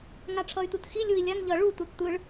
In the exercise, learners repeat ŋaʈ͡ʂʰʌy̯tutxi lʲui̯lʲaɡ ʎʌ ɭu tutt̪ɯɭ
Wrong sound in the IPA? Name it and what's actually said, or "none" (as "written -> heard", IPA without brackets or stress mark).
ɡ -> ŋ